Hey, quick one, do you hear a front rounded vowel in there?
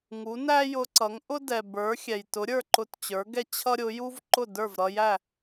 no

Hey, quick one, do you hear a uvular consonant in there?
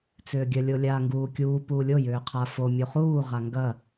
yes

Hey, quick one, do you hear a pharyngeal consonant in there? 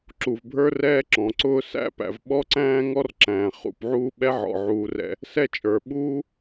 yes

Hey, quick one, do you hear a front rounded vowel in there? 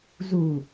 no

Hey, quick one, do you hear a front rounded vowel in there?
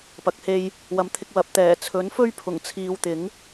no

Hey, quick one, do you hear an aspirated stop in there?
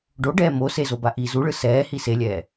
no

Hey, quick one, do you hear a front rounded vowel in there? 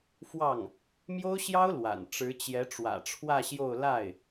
no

